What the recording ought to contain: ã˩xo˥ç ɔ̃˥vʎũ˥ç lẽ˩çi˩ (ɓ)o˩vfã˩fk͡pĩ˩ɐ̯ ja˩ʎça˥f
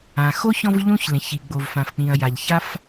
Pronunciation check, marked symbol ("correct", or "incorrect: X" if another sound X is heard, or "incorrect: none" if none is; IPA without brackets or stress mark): incorrect: ɡ͡b